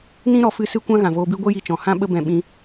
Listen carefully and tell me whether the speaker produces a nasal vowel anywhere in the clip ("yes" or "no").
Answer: yes